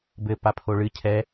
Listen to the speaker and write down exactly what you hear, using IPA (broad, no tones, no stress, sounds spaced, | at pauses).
b ɘ p a pʰ o ɭ ɨ cʰ ɛ